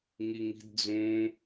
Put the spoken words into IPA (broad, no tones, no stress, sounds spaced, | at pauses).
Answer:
ŋ i ŋ i̤ d d͡z ũ